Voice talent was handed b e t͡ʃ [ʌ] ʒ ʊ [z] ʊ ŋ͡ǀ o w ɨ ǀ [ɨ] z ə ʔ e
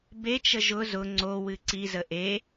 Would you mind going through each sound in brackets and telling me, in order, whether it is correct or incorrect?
incorrect: ə, correct, incorrect: i

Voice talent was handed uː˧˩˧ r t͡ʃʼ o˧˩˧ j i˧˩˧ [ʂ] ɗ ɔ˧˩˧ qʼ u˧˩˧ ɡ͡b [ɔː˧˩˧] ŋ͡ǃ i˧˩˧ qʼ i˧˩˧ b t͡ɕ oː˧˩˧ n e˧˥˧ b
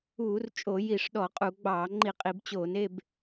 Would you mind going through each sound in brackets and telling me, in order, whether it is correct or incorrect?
correct, incorrect: ɑː˧˩˧

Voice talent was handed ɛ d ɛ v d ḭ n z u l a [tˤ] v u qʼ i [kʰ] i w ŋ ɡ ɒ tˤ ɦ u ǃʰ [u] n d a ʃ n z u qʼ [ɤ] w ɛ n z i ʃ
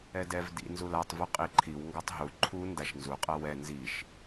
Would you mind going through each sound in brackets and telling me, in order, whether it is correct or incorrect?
correct, incorrect: ǃʰ, correct, correct

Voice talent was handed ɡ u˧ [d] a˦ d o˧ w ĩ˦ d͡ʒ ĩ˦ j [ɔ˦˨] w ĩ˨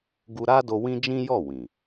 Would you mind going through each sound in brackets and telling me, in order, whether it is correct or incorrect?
incorrect: ɾ, correct

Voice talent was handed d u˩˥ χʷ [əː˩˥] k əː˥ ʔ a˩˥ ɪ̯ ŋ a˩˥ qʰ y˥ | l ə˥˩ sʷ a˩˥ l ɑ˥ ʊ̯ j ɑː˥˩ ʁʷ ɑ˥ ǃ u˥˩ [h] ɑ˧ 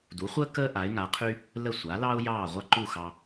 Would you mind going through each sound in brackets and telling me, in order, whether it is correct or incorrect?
incorrect: əː˥, incorrect: x

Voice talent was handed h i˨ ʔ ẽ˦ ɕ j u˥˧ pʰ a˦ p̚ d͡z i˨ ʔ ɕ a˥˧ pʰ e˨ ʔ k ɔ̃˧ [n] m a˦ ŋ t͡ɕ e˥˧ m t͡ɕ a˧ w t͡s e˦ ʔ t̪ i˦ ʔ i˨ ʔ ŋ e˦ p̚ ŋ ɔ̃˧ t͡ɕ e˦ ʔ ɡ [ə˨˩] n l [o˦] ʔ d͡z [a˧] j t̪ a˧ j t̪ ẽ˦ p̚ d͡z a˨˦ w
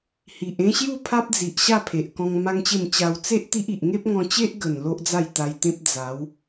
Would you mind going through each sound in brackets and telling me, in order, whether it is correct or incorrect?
incorrect: ŋ, correct, correct, incorrect: a˥˧

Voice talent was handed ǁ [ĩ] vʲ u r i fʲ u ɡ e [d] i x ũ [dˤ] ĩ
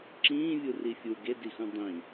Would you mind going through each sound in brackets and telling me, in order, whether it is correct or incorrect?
incorrect: ĩː, correct, correct

